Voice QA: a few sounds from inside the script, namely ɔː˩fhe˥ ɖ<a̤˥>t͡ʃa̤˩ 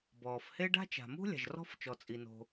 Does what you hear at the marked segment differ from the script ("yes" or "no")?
no